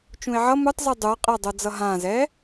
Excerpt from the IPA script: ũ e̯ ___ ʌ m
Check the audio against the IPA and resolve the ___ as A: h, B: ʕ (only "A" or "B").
B